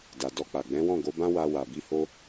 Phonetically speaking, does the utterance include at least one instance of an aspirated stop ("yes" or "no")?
no